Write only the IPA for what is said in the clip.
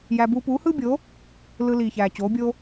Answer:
j æ˧ b uː˧ p uː˨˦ h ɯː˦ bʲ o˨˦ | l ɯ˧ l iː˨ ç æː˨ t͡ɕ oː˨˦ bʲ o˦

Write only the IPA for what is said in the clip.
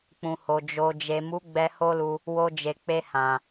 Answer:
k͡p ũ˨ h o˨ d͡ʒ o˨ d͡ʒ e˨ m u˨˦ ɡ͡b ɛ˧ h o˦ l u˧ | w o˧ d͡ʒ e˨ k͡p e˧ h ã˨

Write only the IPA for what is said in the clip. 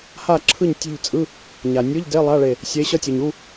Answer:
h a˥˨ ǁʰ ɯ˥˨ ɲ tʲ e̤˥˨ ʎ t͡sʼ ɯ˧˥˧ | ɲ a˩ nʲ ɯ˧˥˧ ʎ d e˧˥˧ lˠ a˧˥˧ ɭ e˧˩ | sʲ e˨˥ ɕ ʌ˧˥˧ tʲ ɯ˩ ɲ u˧˥˧

